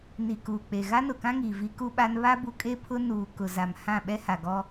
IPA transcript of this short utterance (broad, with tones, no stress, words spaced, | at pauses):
ni˨ kuː˨k͡pe˨ ɣa˦nʊ˨kã˦ŋiː˨ vi˦ku˦ɓa˦n βa˦bu˨kʼe˦ pʰʊ˦nuː˨ kʊ˨za˨m hã˦˨ɓɛ˦ha˨ɡɔ˦